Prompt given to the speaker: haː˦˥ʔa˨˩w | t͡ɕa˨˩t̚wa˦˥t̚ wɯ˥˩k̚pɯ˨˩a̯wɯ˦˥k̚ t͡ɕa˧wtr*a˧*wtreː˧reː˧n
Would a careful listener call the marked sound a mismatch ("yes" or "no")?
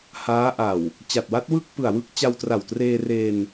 yes